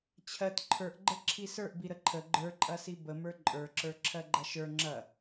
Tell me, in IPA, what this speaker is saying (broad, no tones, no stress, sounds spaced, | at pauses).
t͡ɕʰ ɜ t ǃʰ ə˞ ʔ ɡ͡ǃ ə ǁʰ i s ə˞ ʔ b i ɾ ə ǃʰ ə ɡ͡ǃ ə˞ ǃʼ ɐ s i b ə m ə˞ ǃʼ ə˞ ǁ ə˞ ǁʰ ɜ ɡ͡ǃ ɐ ʃ ə˞ ŋ͡ǁ ɐ